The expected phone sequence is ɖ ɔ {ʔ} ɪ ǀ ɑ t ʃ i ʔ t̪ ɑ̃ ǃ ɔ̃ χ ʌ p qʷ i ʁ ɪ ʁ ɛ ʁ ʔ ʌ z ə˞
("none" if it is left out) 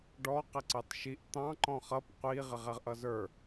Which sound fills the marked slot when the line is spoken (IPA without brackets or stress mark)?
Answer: q